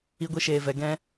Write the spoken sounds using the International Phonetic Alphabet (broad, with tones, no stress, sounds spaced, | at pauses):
i˦ ɡʷ i˦ ʃ eː˧ v ɛ˨˦ ɡ ɛ̃˦